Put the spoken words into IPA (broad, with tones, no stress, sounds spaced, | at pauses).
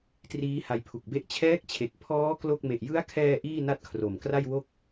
t r iː˦˥ h a˧ j pʰ u˨˩ k̚ b e˥˩ ʔ t͡ɕʰ ɛː˦˥ k̚ t͡ɕʰ e˨˩ k̚ pʰ ɔː˦˥ k l o˥˩ k̚ m e˨˩ ʔ j ɯ˦˥ a̯ kʰ ɛː˧ ʔ iː˥˩ n a˥˩ t̚ kʰ r o˨˩ m k r a˥˩ j w o˥˩ k̚